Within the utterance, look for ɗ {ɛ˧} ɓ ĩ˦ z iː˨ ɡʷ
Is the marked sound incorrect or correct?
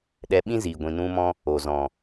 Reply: correct